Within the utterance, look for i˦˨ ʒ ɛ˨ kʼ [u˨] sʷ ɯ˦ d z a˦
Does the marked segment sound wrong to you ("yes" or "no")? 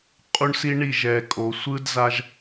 yes